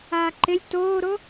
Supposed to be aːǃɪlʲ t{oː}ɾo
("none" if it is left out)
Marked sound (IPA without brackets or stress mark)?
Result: oː